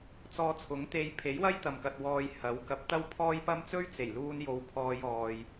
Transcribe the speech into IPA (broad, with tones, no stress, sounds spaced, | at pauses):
t͡s ɔː˧ t͡sʰ ʊ˨˥ ŋ t̪ e˧ j pʰ e˨˥ j w ɐ˥ j t̪ ɐ˨ m k ɐ˨ t̚ w ɔː˧ j h ɐ˨˥ w k ɐ˨˥ p̚ t̪ ɐ˥ w pʰ ɔː˥ j p ɐ˥ m t͡s ɵ˥ ɥ t͡s e˨˩ j l uː˧ n j o˨ w pʰ ɔː˧ j ɔː˨ j